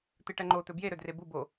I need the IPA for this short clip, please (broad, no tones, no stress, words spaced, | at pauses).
t̪ɨʈɐŋ͡ǃo t̪ɵbje ɾɵdrebu bo